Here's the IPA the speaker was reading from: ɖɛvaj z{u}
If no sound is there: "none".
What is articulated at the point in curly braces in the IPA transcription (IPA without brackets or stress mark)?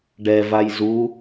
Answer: u